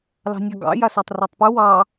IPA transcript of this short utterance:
l ɑ̤ nʲ ɑ ɡ ɑ̰ j a s a tˤ r o tˤ p ʉ w ɑ

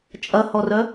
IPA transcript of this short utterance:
t͡ʃʼ ɐ h ɔ r œ

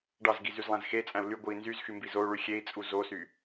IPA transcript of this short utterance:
ɖ ɑ z ɡ i z y z lˠ æ̃ z x e t͡sʼ æ̃ u̯ l y ɡʷ ɯ i̯ n z y z x y m b i z o u̯ ɭ y xʲ e i̯ t͡sʼ u z o s y

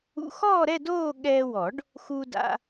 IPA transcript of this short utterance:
ṵ˧ x ɔː˥˧ ɾ ɛ˥˧ d oː˥˧ ɠ ɛː˧ w ɔ˨˩˦ ɖ | x u˧ d a̰˧

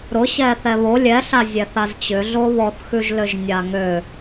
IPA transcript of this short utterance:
ɾ ʊ ɕ ɛ θ ɛ β o lʲ ɛ ɬ a zʲ ɛ θ a z t͡ɕ ʏ ɮ o β ɔ θ x ʉ ʒ l ø ʒ nʲ a ŋ ø

